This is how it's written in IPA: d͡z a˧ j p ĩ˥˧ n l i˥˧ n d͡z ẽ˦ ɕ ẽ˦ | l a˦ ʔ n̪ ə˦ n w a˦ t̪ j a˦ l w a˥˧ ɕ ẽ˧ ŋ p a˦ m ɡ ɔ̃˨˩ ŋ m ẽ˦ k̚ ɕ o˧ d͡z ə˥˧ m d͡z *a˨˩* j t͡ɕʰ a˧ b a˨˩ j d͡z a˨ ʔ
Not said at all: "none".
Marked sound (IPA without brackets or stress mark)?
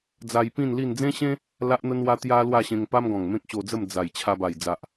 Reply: a˨˩